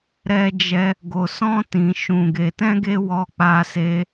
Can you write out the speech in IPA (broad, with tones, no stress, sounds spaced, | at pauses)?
ɾ ɛ˦ d͡ʒ ɛ˦ | ɡ o˧ s ɔ̃˦ t ĩ˧ ʃ ũ˧ ɡ e˧ t ɛ̃˦ ɡ e˦ w ɔ˦ k͡p a˦ s e˦